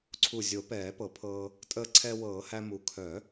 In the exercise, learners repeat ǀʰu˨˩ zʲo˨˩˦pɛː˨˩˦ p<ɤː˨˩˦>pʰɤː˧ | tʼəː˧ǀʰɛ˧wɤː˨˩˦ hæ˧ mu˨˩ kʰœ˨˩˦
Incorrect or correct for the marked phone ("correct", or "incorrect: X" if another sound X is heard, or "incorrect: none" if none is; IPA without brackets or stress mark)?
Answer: incorrect: ɤ˨˩˦